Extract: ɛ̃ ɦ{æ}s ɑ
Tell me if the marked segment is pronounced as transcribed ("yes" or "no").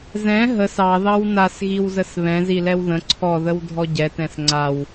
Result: no